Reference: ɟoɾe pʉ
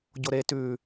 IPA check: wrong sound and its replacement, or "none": p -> t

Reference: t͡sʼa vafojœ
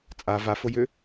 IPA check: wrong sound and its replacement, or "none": œ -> ø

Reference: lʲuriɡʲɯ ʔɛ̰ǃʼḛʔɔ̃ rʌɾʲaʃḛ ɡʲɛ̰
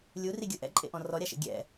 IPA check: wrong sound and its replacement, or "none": ʌ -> ɔ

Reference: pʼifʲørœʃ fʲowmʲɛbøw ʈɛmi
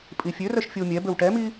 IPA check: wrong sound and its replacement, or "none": none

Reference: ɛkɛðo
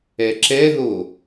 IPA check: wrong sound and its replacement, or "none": k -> ǁ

